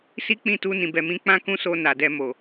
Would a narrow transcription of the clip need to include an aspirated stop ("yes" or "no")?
no